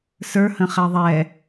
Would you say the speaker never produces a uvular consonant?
no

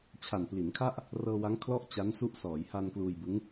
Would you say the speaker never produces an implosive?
yes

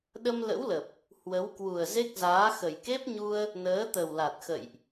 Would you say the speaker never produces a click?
yes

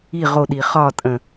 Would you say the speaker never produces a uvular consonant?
no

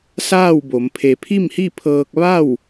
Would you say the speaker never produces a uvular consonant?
yes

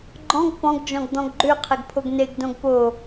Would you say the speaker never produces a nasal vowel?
no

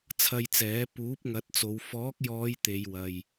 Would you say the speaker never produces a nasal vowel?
yes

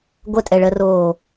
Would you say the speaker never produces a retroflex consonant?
no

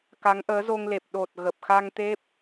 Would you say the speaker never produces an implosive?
no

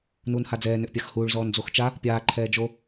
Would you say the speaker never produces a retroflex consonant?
no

